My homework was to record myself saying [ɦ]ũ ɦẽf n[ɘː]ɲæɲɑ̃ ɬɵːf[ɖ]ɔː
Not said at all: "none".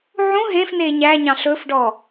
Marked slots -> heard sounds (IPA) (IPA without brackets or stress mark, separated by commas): ʕ, eː, ɖ